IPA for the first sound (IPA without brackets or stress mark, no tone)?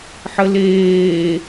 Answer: ħ